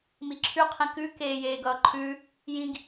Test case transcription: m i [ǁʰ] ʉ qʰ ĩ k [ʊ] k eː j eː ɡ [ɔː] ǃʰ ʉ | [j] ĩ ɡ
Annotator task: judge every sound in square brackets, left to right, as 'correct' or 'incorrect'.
correct, incorrect: ʉ, incorrect: ʌː, correct

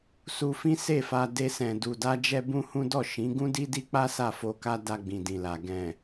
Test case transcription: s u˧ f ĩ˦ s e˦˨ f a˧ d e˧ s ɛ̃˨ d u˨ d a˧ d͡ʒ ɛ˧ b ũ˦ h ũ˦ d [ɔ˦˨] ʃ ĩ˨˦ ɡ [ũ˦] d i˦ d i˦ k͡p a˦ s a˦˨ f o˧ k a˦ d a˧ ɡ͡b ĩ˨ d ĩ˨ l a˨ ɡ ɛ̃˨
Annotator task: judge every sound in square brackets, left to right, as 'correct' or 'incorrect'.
correct, correct

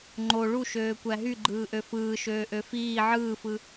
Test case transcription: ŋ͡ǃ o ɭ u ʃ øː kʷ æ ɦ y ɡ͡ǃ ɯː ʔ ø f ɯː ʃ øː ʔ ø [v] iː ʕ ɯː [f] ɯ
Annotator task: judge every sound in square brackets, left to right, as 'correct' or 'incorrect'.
incorrect: f, correct

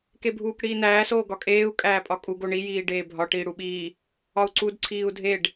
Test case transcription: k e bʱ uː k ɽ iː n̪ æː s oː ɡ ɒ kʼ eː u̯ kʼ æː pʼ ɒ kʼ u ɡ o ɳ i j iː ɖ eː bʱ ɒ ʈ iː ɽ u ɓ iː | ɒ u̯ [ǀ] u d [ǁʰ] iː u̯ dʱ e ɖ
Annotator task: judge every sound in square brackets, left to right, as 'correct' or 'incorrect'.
correct, incorrect: ǀʰ

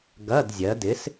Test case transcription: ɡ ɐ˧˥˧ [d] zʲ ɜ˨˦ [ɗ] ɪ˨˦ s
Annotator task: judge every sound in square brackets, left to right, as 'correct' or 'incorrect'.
correct, incorrect: d

